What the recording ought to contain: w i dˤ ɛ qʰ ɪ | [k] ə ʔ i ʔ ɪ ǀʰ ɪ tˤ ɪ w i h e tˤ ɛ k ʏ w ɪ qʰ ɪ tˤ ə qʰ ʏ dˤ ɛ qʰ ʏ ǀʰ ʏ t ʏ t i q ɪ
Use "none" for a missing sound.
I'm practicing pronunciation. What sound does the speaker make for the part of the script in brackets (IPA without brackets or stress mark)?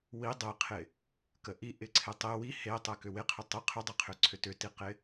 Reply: k